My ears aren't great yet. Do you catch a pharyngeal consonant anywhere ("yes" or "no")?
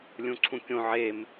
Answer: yes